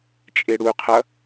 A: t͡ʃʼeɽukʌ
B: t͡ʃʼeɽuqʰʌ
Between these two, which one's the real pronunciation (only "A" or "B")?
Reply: B